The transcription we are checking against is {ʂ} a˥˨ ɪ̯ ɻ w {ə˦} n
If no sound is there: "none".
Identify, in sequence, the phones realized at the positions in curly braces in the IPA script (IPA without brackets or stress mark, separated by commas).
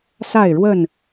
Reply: s, ə˥˨